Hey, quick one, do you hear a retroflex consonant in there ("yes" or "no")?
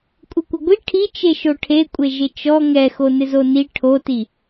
yes